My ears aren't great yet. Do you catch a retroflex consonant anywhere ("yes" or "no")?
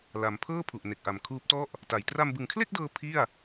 no